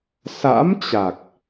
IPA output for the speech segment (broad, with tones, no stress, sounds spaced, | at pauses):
s a̰˧˥ m t͡ɕ a˨˩ k̚